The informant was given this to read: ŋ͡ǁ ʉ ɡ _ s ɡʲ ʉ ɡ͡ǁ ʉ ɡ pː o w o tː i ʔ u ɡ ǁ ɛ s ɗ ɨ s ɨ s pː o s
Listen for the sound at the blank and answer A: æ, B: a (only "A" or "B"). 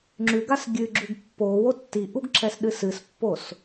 B